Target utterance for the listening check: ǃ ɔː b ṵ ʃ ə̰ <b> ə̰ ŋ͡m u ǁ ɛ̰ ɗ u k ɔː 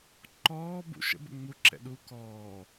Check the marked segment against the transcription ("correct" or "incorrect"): correct